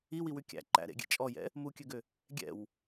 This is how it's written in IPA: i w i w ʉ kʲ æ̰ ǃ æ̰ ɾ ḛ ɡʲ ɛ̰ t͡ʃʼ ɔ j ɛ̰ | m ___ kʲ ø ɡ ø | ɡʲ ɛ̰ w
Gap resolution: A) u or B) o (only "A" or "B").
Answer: A